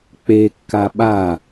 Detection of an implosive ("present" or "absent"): present